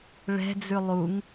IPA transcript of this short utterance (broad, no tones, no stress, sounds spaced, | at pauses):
ɭ ɛ̤ d͡z ʉ lˠ u ŋ